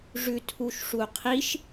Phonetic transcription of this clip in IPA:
ʐʉtʰuʃʂuqʰiʃ

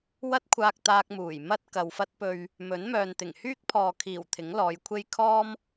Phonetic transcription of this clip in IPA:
wɐ˥t̚kʷʰaː˧k̚ t̪aː˧k̚muː˨˩j mɐ˥t̚ kɐ˨wfɐ˥t̚pɵ˧ɥ | mɵ˨˥nmœː˨nt̪ɪ˨˩ŋ hyː˥k̚pʰɔː˨kʰiː˨˩w t̪ʰɪ˨˥ŋlɔː˨˧jkʷʰe˥j kʰɔː˥m

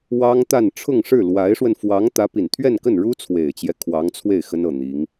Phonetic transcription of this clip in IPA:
wɑ˥ŋt̪a˥˧n ʈ͡ʂʰʊ˥˧ŋʂɻ̩˥˩lwa˧˥ɪ̯ʂwə˧n fwɑ˧˥ŋ t̪ä˧˥pi˨˩nt̪ʰɥɛ˥˧nkə˥˩n ɻu˥t͡sʰwe˨˩ɪ̯t͡ɕjɛ˦ kʰwɑ˧˥ŋt͡sʰwe˥˩ɪ̯ xə˥nɤ˥˩ n̪i˧˥ŋ

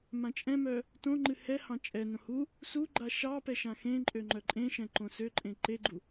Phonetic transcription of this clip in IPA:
mãt͡ʃʼɛ̃mœ | tõŋ͡ǃɨ hɛhɑ̃ t͡ʃʼɛnõ hu | suɡ͡ǃa ʃɑpɛ ʃãxẽǃʼø ŋ͡ǃœǃʼẽʃɛ̃ ǃõsøǃʼẽ ǃeɡ͡ǃu

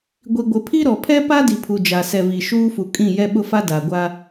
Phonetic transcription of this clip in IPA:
ɡʷi˨ɡʷɪ˨pʰi˦ ɾɔ˨pʰɛ˦pa˦ di˨pʰu˨ d͡ʒa˨sɛ˨vi˨ ʃuː˦fu˨kʼĩ˦˨ jɛ˦ɓʊ˦fa˦ da˨ɡʷa˦

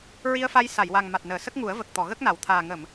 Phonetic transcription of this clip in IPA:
ɹi˧ə̯fa˧j sa˨˩˨jwa˨˩ŋ ma˨˩t̚nəː˨˩˨ sə˦˥k̚ŋu˨˩˦ə̯və˨˩k̚t̪ɔ˨˩˨ ɣə˦˥k̚na˨˩˦wt̪ʰaː˨˩ ŋə˨˩˨m

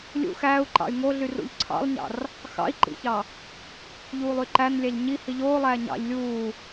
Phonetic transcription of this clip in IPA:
lʲṵ xæːu̯ǃɑ̰y̯ ŋoɮyrṵʎ ǀʰɑ̰lˠɲɑ̰r | xɑ̰i̯ǃḭçɑ | ʎuːlˠyǃæn lʲæʎɲi hiʎoːlˠæː ɲɑ̰ʎ lʲuː

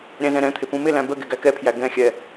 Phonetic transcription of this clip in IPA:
ɾʲæ̃zɛ̃ɾɛ̃t̪ʰɪ pũmɪlæ̃ bə ɡɪɡækɛpʰjæ ɡɛ̃xʲɛ

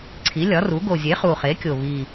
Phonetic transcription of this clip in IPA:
ǀʰi˩˥lʲɒ˩˥ru˩˥ ɡo˨˩zʲe˩˥ χu˨˩χe˩˥kʲo˨˩βi˨˩

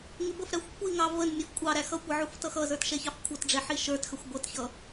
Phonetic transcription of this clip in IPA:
ŋɪbəfɾæxʷ kʷiŋɑ vənmʲəf kʷʼɑ ɾæxʌkʷʌ ʕuftʌxʌzə˞t ʃɛçɑfkʷʰʌtɖ͡ʐɛ ħiʃə˞txəxʷ ɡʷʌtçʌ

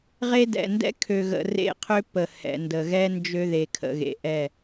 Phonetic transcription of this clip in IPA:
ʁe˦dɛ̰˨ ndɛ̰˦kʰø˨ɣə̰˨ rḛ˦˨qʰø˦pə˨ hɛ̰˨ndə˨ ɣɛ˦ nd͡ʒø˦ðe˨ kʰə̰˨ɣḛ˨ʔɛ˦˨

